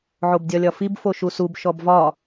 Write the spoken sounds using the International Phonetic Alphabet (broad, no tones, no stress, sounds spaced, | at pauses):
ʕ o b dʲ ɒ lʲ ɒ f i b f o ʃ u s u b ʃ ɔ b v ɒ